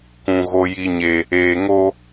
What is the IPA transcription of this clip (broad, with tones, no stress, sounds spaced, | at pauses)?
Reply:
k ũ˨ ɣ o˦ j i˦ ɲ e˦ | eː˨ ŋ o˦